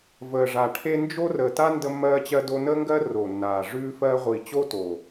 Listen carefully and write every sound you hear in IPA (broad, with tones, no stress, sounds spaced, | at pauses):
v əː˨˩ ʐ a˨˩ ʈʰ e˥ n d͡ʒ o˥ r əː˨˩ t a˥ n d ə˥ mː ɜː˥ t͡ɕ ɜ˥ d o˥ n əː˥ ŋ ɡ ɜ˥ r o˨˩ nː aː˨˩ ʐ ʉː˥ f ɜ˥ ʁʷ i˨˩ t͡ɕ o˥ t o˨˩